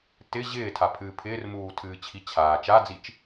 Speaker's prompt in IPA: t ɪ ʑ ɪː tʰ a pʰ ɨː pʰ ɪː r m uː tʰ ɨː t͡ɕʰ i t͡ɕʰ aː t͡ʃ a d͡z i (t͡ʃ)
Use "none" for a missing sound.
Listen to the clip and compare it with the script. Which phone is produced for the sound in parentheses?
t͡ʃ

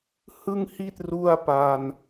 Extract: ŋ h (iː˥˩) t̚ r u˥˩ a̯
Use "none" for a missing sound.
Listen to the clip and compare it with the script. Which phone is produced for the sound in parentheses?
i˥˩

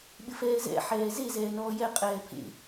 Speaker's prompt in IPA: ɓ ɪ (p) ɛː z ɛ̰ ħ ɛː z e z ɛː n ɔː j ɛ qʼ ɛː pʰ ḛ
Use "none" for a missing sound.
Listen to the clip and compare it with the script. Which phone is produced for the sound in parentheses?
f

